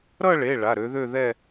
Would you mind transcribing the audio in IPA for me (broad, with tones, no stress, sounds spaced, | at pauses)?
ɾ ʌ˥˧ ɭ e˩˧˩ ɭ a˩˧˩ ɾ ø˨˦ ð ø˥˧ ð ɛ˥˧